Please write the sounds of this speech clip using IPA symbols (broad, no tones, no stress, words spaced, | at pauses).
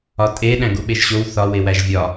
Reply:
ɒtʼe ɗæ̃ɡuɓeʒɕow θɒ wewæʒvʲɒ